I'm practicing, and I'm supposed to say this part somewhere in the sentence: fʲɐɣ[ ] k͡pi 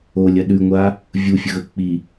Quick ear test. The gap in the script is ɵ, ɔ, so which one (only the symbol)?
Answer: ɵ